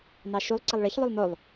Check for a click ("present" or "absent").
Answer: present